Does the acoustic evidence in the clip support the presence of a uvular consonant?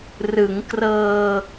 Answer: no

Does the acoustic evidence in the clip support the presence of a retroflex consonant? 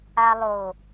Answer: no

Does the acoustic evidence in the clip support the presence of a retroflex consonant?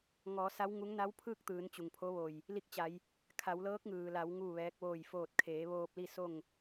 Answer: no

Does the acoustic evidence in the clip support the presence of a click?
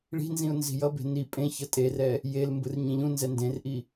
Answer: no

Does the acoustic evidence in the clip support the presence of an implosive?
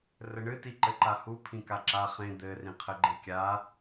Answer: no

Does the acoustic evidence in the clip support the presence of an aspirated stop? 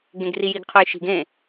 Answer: yes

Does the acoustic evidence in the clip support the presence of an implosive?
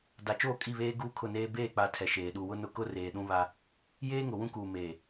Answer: yes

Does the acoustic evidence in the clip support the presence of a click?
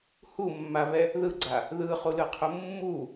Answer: yes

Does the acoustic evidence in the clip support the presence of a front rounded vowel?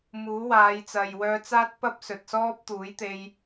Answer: yes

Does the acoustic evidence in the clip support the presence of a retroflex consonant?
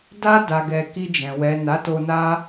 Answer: no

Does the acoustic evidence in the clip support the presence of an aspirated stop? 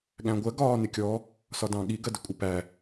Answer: no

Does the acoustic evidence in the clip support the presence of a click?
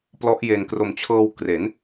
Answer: no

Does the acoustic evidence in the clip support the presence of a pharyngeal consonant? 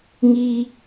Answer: no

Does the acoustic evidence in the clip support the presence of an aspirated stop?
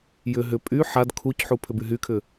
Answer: yes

